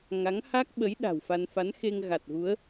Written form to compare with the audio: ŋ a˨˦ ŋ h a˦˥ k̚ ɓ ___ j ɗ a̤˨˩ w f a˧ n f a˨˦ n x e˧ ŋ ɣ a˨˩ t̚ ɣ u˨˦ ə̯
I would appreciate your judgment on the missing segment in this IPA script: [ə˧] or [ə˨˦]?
ə˨˦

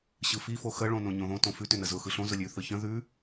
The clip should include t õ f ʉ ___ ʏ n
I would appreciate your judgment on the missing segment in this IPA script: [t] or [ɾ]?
t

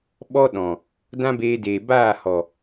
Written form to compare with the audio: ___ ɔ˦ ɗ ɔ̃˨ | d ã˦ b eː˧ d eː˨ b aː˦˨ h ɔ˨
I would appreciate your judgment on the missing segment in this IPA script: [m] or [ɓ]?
ɓ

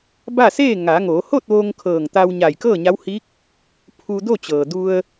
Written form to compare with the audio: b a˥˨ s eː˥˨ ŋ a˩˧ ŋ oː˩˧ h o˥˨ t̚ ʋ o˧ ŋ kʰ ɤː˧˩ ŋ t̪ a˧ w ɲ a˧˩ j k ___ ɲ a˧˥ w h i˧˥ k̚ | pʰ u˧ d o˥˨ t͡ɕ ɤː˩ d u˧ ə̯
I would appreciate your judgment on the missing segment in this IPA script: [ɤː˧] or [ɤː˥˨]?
ɤː˥˨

